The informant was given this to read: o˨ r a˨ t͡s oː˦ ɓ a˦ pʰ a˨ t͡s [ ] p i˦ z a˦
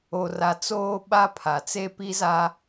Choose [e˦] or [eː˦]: e˦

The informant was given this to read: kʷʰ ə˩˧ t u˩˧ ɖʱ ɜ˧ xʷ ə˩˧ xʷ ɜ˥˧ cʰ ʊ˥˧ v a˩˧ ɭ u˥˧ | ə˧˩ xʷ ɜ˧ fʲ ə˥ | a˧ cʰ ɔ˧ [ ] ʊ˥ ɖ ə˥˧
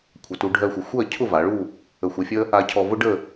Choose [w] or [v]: v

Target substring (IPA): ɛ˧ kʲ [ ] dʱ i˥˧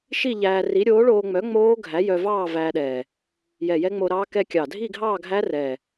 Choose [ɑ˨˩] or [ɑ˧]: ɑ˨˩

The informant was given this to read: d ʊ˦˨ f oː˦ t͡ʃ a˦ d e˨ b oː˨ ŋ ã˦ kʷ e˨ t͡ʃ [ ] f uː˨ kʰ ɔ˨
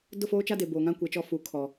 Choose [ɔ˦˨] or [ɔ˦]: ɔ˦˨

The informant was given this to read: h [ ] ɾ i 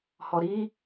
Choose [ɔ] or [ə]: ɔ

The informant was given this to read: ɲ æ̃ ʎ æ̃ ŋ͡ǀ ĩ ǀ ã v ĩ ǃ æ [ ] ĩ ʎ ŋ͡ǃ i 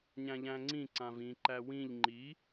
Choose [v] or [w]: w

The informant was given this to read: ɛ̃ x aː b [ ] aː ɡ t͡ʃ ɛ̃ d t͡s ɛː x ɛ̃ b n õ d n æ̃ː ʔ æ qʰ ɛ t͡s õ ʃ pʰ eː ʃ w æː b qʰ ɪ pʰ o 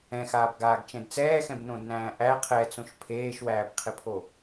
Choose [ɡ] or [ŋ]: ɡ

